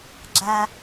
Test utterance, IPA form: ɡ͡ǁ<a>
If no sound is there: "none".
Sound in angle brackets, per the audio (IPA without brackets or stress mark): a